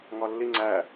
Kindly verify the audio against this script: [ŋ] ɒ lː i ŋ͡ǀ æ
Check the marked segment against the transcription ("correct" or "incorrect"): correct